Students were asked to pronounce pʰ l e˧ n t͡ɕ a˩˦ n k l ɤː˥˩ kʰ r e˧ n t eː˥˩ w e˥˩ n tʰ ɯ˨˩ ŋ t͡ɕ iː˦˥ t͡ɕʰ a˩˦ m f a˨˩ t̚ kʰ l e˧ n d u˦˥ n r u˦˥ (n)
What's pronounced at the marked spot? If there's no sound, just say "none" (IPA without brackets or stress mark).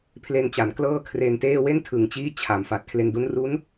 n